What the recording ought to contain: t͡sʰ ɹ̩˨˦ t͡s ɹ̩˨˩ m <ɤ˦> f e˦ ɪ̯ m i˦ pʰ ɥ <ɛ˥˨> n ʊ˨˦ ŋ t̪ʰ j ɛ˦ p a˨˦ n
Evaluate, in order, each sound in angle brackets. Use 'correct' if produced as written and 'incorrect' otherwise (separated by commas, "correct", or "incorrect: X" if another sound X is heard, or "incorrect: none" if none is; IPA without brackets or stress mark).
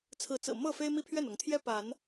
incorrect: ɤ˥˨, correct